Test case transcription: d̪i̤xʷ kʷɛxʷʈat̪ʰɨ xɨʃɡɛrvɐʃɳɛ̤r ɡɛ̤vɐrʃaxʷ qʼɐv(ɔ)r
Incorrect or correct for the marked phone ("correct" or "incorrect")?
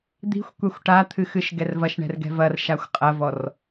correct